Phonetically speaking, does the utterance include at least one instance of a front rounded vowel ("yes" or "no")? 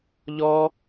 no